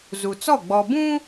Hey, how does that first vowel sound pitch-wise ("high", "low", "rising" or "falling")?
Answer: low